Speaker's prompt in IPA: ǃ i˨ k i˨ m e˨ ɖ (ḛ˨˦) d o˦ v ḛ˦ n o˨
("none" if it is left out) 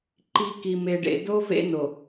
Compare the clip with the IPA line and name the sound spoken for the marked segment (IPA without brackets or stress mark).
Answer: ḛ˨